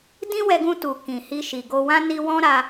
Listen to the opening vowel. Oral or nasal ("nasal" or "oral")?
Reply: nasal